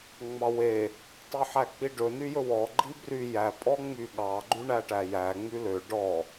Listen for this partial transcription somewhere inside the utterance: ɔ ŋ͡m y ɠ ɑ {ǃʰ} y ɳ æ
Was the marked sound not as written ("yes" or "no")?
yes